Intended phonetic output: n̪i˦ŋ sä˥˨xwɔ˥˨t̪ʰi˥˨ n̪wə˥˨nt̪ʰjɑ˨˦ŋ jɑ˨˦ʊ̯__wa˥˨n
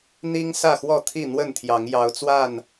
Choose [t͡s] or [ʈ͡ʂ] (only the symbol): t͡s